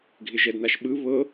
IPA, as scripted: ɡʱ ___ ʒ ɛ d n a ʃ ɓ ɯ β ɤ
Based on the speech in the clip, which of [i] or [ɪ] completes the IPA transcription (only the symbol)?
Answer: ɪ